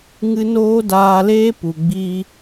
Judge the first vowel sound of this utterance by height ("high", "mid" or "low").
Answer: high